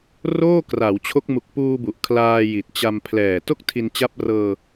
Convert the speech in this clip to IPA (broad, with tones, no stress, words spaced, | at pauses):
roː˥˩kra˩˦wt͡ɕʰo˦˥k̚ mu˨˩k̚puː˧bu˨˩ʔ kʰlaː˧ji˨˩t̚t͡ɕa˧mpʰlɛː˨˩ to˥˩k̚tʰi˧nt͡ɕa˦˥p̚rɤː˧